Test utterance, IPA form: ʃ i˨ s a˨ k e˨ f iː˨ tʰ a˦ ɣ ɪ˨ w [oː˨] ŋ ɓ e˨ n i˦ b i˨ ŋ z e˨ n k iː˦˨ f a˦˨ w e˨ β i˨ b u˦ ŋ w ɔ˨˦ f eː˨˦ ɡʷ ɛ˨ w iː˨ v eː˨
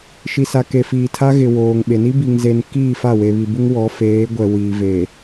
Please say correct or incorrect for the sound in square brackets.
correct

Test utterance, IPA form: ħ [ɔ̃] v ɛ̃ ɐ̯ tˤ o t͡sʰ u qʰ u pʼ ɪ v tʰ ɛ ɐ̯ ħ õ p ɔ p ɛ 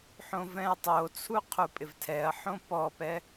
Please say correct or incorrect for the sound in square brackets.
incorrect: õ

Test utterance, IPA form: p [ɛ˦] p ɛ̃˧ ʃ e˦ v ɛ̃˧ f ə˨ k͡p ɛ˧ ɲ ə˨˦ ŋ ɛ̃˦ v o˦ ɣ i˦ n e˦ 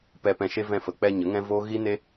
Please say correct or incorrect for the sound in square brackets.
incorrect: ɛ˧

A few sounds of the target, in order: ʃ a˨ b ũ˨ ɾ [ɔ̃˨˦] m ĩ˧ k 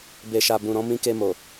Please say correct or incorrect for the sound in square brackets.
correct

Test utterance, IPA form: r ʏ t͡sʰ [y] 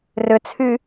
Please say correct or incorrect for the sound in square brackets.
correct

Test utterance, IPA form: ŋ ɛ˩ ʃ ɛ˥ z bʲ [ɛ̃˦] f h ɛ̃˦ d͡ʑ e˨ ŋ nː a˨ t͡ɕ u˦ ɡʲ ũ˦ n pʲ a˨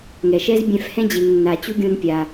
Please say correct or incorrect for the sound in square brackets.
correct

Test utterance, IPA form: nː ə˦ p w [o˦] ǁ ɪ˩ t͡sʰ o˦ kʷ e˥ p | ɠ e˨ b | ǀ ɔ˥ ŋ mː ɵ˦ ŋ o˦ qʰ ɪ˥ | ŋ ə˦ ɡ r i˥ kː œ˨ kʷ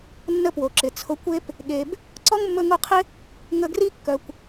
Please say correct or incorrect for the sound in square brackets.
incorrect: o˩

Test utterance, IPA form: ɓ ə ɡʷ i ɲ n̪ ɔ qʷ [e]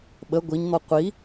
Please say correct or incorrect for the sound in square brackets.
incorrect: i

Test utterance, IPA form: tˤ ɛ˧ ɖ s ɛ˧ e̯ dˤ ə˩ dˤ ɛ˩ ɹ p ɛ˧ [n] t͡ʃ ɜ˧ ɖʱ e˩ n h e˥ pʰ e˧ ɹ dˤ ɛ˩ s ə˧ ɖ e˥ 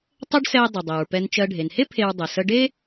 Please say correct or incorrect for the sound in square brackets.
correct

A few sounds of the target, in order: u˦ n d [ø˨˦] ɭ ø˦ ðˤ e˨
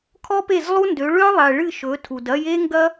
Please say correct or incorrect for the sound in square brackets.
correct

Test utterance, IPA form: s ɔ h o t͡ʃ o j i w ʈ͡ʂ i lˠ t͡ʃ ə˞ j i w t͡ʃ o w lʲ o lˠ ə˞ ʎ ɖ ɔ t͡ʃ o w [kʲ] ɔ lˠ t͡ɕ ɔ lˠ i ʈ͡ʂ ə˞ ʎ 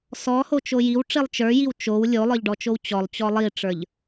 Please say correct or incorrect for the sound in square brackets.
incorrect: t͡ɕ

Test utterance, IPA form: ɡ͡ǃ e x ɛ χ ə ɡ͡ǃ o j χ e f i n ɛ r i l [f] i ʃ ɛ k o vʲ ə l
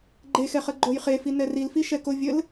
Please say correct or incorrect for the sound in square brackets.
correct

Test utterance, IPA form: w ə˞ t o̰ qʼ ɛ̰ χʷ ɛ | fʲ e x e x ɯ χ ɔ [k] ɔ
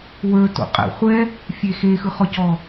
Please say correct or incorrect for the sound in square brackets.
incorrect: c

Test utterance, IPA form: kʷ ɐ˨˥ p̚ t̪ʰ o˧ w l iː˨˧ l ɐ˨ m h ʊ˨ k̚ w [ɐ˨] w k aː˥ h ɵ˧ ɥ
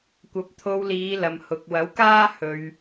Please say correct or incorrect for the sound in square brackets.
incorrect: ɐ˨˥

